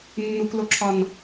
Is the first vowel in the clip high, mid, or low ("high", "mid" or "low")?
high